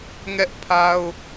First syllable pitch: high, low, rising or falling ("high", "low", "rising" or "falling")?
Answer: high